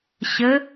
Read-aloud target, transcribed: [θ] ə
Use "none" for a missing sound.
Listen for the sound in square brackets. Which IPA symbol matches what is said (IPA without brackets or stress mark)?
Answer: ɕ